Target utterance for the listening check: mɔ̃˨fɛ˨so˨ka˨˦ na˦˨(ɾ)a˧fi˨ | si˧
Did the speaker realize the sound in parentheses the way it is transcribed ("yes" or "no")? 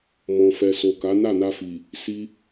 no